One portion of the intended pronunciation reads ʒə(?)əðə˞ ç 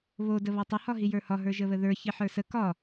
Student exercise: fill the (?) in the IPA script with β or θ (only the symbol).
β